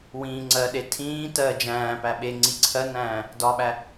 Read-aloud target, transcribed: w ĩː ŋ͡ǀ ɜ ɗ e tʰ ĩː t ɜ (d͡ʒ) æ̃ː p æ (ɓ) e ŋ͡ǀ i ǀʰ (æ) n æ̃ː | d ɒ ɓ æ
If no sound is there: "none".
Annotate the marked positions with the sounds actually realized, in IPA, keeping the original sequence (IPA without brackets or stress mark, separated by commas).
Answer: d͡ʒ, ɓ, ɜ